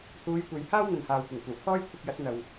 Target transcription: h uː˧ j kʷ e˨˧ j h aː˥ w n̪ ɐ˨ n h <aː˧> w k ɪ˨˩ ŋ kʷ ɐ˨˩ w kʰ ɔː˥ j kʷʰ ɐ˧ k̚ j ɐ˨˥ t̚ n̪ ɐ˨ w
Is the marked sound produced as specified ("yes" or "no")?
no